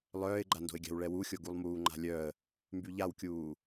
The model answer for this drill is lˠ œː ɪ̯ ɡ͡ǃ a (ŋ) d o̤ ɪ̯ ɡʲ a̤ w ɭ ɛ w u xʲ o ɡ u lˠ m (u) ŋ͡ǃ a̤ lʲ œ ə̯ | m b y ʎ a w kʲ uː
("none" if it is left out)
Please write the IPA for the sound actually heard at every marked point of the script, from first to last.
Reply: n, uː

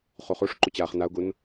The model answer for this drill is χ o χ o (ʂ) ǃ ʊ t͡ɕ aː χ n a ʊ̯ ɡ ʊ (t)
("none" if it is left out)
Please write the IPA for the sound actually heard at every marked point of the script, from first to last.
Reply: ʂ, n

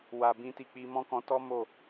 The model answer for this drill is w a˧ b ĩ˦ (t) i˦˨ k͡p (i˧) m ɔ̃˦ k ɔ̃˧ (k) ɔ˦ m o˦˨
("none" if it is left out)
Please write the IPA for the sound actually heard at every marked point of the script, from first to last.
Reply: t, i˧, t

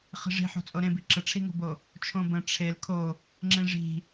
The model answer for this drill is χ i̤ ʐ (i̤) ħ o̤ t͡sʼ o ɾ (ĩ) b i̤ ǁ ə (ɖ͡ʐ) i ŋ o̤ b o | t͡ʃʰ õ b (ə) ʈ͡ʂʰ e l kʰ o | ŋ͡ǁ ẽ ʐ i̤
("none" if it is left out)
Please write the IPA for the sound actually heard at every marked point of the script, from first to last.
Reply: i̤, ẽ, ʈ͡ʂʰ, ə̃

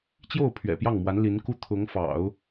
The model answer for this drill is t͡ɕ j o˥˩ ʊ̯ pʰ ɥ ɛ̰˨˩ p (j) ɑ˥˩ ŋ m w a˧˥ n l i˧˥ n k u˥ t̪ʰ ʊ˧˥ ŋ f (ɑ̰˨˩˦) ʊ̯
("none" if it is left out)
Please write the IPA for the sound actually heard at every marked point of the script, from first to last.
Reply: j, ɑ̰˨˩˦

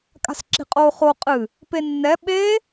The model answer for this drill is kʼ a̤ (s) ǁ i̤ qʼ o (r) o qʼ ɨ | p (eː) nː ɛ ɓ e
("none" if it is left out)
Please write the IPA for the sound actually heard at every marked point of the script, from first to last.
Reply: s, χ, e

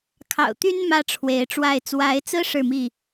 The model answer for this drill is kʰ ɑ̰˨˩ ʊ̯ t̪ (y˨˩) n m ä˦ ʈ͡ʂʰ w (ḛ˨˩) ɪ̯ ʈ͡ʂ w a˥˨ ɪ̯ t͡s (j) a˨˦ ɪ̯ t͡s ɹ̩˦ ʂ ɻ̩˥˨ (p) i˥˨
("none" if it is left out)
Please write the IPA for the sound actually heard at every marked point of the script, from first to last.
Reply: y˦, e˨˦, w, m

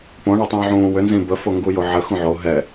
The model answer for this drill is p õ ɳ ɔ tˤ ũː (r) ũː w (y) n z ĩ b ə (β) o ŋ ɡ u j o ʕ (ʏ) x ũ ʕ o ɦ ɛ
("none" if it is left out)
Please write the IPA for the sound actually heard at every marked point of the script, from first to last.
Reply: ʕ, ʏ, f, ə

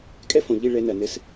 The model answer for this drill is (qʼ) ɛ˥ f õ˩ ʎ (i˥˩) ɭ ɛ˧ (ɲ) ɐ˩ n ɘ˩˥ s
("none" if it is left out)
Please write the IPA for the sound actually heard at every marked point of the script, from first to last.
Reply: kʼ, i˥˩, n

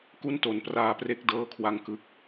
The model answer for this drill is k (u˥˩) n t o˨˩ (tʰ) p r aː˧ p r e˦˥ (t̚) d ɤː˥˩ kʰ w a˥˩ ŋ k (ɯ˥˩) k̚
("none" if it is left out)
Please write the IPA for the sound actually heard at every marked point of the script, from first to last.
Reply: u˥˩, n, k̚, ɯ˥˩

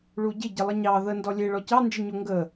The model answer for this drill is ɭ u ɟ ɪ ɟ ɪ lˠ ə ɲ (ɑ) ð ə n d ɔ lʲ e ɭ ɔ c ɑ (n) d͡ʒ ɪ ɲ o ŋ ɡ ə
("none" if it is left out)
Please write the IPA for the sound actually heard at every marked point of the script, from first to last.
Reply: ɑ, n

